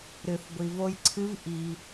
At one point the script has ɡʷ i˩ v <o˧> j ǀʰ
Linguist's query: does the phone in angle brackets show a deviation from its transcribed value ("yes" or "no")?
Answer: no